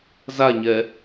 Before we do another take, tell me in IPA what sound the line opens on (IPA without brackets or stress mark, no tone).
z